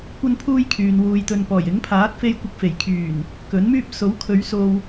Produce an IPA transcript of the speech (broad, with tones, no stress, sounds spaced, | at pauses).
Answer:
kʷ ɐ˥ n pʰ uː˥ j kʰ yː˨ n w uː˨ j t̪ ɵ˨ n p ɔː˨˩ j ɪ˨˥ ŋ pʰ aː˨˥ t̚ f e˧ j kʷ ɪ˧ k̚ f e˨˩ j kʰ yː˨˩ n | k ɵ˨˥ n m yː˥ p̚ s o˨˥ w kʰ ɵ˨˧ ɥ s o˧ w